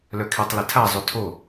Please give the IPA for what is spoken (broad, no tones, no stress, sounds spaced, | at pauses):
l œ kʰ i tˤ l ɪ tʰ a zˤ ʏ tʰ o